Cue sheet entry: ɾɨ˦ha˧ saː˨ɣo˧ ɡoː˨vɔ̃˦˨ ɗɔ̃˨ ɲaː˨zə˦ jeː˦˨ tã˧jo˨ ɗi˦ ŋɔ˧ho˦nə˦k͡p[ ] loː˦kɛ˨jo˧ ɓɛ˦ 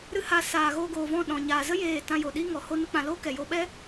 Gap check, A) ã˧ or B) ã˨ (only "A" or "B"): A